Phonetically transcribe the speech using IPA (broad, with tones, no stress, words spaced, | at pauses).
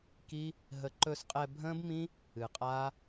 ki˦ | ɦə˧ ǃɵ˧sqʼɛ˧bʱə̃ː˦bmĩ˦ | ɨ˨qʼaː˦